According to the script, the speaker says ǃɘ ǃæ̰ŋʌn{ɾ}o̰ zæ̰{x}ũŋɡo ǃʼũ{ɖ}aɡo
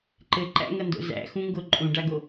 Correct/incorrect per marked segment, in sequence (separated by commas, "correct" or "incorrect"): incorrect, correct, correct